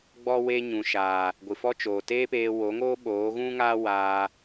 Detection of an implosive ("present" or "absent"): present